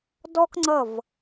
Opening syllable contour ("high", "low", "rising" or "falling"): high